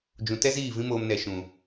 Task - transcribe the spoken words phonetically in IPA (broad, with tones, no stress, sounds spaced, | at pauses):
d͡ʒ ũ˨ t ɛ˦ z iː˦˨ v ĩ˦ m oː˧ m n ɛ˨ ʃ ũ˨